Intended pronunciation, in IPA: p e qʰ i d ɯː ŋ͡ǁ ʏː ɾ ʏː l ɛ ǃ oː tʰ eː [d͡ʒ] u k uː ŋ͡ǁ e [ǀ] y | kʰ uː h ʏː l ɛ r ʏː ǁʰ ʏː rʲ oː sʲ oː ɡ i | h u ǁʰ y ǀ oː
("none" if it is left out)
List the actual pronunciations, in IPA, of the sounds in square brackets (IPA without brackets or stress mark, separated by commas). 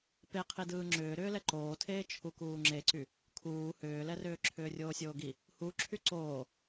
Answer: t͡ʃʰ, ǀ